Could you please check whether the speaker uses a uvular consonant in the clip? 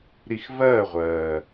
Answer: yes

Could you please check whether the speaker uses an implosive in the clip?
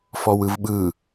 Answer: yes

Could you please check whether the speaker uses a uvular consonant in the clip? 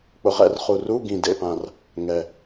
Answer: yes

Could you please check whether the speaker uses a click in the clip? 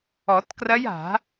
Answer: no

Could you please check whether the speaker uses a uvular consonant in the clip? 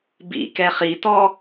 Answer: yes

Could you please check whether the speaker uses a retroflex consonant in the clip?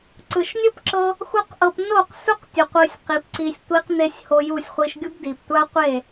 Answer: no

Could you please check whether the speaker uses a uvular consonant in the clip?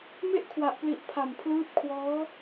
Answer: no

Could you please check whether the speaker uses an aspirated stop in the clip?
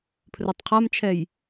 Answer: yes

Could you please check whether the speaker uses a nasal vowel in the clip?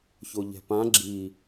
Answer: yes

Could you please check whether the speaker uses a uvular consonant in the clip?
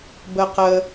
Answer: yes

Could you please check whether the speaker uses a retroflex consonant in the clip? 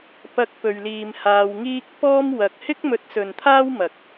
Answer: no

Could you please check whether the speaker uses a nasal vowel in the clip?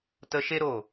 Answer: no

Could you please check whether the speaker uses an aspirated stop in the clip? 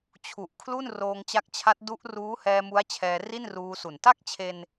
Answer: yes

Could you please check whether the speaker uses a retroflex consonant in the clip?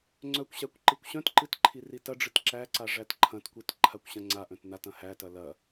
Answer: yes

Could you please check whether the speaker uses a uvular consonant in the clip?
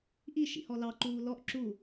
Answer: no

